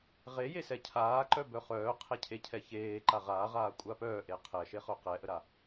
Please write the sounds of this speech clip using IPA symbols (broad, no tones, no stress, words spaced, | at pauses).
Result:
ʁejesɛ cʰaːǃœbœ χœːqʰɛcʰe cʰɛçeː ǃaʁaːʁaː kʷʼapœːʔe qʰɛʃeχœ qɛʔəɾa